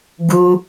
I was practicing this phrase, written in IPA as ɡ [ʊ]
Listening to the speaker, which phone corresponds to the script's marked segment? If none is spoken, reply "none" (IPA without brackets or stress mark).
u